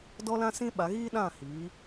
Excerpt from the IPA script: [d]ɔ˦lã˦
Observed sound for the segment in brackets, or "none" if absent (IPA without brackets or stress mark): d